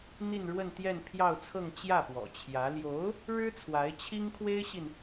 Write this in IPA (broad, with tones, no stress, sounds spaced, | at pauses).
n̪ i˥˧ n ɻ w ə˥˧ n t̪ j ɛ˥˧ n pʰ j ɑ˥˧ ʊ̯ t͡sʰ ɤ˥˧ ŋ t͡ɕ j ä˥˩ p w ɔ̰˨˩ t͡ɕʰ j ä˧˥ l j o˧˥ ʊ̯ | ɻ ɻ̩˥ t͡sʰ w a˧˥ ɪ̯ t͡ɕʰ i˥ ŋ kʰ w e˥ ɪ̯ ɕ i˨ n